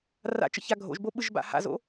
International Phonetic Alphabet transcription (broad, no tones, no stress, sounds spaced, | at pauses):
r a̰ t͡ʃ ə̰ ç a ɡʱ o̰ ʒ b o ɓ ɯ ʒ b a̰ h a̰ z o̰